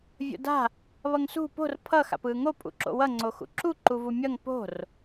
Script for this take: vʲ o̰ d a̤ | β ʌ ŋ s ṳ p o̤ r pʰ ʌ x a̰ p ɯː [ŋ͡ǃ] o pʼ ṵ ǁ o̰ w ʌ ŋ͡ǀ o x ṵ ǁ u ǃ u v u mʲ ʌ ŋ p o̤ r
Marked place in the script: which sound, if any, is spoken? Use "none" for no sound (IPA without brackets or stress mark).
ŋ